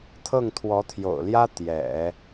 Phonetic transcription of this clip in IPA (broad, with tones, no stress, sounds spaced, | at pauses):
t̪ʰ ɤ˥˩ ŋ t̪ʰ w ɔ˧˥ t̪ʰ j o̰˨˩ ʊ̯ l j ä˥ t̪ j ɛ̰˨˩˦